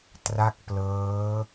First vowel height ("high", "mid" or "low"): low